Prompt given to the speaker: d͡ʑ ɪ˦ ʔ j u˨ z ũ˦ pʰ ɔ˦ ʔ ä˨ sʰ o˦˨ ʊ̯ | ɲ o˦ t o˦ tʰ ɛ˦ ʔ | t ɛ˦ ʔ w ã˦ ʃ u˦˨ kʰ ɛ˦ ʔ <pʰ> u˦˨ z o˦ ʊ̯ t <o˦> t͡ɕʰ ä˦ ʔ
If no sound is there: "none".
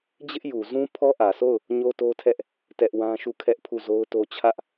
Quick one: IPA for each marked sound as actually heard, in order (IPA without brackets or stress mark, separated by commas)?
pʰ, o˦